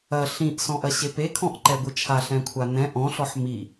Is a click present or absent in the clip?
present